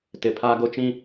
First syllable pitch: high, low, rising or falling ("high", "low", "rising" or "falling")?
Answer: low